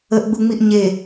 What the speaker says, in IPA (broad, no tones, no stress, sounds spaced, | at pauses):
ə ʔ ɡ͡b u ŋ͡m i ʔ ɲ e